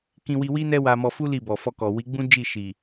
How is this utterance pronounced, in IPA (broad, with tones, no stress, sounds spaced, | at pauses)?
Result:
k ĩ˧ w i˧ w i˦ n ɛ˦ w a˧ m ɔ˧ f u˦ l i˦˨ b ɔ˨ f ɔ˧ k ɔ˨ w i˨˦ ɡ͡b ũ˦ d͡ʒ i˦˨ ʃ i˨